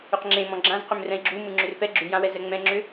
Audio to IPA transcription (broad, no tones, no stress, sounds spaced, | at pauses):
ʏ q ŋ͡ǁ ẽ m ɔ̃ ɡ͡ǁ ã z q ʏ m r ɛ̃ i̯ ɡ͡ǁ u m ɯ ŋ͡ǁ ʏ r p ɛ ɡ͡ǁ ʉ j ã w ɛ z ɛ ŋ͡m ɛ̃ ŋ͡ǁ ʏ